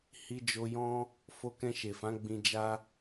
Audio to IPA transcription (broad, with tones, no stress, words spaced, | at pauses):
hi˧d͡ʒo˧jɔ̃˦ | fo˧kɛ̃˧ʃe˨fã˨˦ ɡ͡bĩ˧d͡ʒa˦